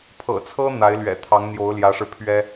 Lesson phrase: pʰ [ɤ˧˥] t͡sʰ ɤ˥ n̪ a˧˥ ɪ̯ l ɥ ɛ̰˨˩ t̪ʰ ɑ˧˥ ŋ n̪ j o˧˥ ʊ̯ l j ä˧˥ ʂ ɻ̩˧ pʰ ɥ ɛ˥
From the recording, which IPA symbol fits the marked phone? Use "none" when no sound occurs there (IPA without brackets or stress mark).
ɤ̰˨˩